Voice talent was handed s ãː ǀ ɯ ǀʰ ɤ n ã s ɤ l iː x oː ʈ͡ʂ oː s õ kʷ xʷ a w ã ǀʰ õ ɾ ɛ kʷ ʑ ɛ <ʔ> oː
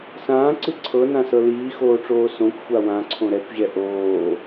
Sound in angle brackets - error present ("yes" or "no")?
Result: no